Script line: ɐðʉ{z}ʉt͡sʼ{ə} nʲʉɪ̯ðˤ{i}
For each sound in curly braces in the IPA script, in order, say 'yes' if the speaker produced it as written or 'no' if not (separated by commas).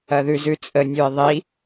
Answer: yes, yes, yes